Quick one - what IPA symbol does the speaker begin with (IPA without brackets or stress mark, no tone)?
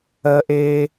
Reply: ɜ